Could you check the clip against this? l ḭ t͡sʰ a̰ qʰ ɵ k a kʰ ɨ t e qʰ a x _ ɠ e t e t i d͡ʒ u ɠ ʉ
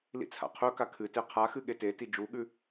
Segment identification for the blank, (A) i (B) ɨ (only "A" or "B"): B